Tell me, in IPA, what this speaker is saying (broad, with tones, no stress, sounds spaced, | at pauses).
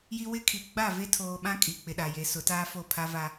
j i˦ w ɪ˦ kʰ i˨ ɡ͡b a˦˨ v e˦ tʰ oː˨ ɓ ã˦ kʼ i˨ k͡p ɪ˨ ɗ a˨ j e˨˦ s ʊ˨˦ t aː˦ f o˦˨ pʰ a˦ v a˦